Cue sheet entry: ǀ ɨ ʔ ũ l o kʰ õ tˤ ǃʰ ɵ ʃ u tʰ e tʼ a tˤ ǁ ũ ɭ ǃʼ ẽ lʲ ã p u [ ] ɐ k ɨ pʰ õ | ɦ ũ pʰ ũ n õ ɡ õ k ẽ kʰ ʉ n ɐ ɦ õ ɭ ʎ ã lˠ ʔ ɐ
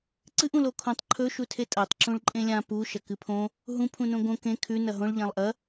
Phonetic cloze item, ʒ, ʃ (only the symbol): ʃ